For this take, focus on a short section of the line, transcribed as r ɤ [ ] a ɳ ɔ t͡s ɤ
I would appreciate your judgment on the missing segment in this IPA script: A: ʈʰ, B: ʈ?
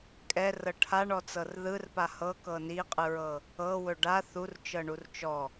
A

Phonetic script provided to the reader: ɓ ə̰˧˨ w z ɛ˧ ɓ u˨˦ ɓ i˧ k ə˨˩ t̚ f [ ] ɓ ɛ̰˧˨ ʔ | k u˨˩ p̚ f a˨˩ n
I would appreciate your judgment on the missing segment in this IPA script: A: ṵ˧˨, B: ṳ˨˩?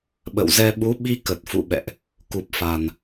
A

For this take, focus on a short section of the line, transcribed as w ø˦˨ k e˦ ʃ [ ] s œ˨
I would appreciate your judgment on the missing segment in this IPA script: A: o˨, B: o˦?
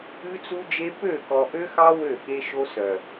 B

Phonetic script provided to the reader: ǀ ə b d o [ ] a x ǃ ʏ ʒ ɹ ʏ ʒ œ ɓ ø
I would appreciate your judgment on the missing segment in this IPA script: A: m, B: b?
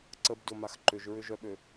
A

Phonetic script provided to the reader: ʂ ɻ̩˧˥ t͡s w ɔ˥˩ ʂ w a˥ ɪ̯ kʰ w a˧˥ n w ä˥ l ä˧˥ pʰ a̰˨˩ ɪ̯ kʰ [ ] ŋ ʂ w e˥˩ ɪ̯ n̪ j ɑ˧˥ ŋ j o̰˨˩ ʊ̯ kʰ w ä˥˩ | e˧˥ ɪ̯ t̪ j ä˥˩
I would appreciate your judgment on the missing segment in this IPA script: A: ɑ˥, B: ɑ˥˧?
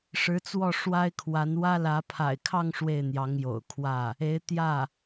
B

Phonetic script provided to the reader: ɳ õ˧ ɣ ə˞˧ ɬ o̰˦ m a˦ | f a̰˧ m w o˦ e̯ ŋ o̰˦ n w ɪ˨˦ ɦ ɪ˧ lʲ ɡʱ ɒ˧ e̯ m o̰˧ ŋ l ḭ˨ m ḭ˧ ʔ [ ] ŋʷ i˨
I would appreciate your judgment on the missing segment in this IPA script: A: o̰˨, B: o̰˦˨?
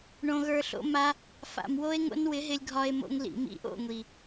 B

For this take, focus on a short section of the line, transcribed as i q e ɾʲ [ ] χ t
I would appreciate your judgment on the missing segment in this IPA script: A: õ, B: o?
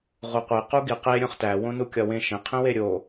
A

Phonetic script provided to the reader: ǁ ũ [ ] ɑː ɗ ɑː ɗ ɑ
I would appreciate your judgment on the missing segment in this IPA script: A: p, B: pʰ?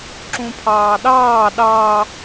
B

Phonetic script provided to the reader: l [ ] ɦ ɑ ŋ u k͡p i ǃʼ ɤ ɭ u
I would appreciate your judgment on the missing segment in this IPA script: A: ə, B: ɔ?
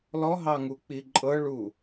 B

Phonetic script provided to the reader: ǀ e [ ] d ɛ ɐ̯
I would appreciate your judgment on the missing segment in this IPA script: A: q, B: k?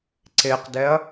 A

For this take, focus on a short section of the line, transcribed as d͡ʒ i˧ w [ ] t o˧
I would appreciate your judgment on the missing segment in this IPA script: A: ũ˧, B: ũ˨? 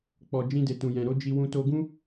A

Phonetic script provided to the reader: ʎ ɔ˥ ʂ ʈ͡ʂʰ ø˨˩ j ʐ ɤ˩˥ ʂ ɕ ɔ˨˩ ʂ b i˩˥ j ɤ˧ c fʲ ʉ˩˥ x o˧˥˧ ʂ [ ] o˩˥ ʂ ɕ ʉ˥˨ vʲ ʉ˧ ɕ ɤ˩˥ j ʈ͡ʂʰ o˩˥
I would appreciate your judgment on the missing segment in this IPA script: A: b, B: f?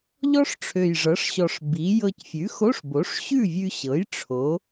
A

